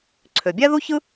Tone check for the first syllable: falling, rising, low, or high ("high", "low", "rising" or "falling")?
low